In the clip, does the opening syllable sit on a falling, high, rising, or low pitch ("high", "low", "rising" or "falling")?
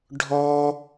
high